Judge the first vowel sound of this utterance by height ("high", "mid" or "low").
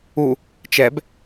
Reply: high